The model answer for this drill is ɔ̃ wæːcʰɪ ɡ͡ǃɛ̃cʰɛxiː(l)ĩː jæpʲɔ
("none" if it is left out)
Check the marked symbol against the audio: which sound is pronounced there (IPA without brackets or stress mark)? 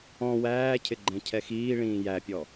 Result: ɭ